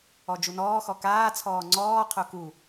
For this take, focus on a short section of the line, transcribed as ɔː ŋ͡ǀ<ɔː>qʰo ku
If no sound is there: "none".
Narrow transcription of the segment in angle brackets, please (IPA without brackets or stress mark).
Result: ɔː